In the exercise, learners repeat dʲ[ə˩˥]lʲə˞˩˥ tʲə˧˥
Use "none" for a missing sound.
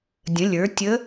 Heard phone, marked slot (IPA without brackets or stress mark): ə̃˩˥